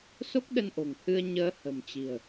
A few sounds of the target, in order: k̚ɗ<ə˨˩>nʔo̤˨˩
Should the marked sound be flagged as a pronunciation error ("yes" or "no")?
yes